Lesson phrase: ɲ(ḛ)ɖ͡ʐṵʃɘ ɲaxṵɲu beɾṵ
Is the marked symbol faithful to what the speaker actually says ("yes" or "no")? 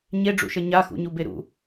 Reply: no